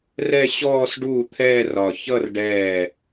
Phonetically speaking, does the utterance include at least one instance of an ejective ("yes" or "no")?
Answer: no